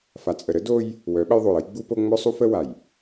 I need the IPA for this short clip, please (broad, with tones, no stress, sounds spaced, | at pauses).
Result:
f a˨ t͡sʼ ə˨ ɾ ə˦ d o˦ j | w œ˨˦ ɓ ə˦ j ðˤ o˨ j ə˦ j ɡ͡b u˦ p o˦ ŋ͡m œ˦ sˤ u˦ f ə˦ w a˨ j